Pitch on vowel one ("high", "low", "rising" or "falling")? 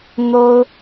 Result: high